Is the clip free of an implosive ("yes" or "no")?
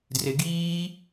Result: yes